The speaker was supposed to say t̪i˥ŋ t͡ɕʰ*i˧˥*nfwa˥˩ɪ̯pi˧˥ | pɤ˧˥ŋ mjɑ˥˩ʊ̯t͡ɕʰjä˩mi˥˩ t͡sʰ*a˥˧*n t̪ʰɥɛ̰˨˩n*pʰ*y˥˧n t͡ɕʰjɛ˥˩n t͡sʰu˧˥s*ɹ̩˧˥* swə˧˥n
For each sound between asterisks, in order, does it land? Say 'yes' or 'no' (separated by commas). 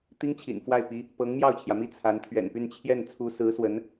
no, no, no, yes